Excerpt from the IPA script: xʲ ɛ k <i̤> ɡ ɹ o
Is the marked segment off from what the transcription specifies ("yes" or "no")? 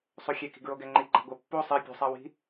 no